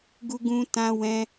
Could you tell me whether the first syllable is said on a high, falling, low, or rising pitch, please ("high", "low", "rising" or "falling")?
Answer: high